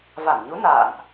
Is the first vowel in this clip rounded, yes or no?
no